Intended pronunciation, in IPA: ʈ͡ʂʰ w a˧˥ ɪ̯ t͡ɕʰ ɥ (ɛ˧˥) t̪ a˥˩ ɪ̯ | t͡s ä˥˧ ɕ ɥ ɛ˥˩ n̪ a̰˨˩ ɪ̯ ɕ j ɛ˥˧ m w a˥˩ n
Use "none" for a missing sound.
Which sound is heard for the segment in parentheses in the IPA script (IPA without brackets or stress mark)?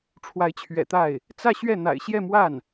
ɛ̰˨˩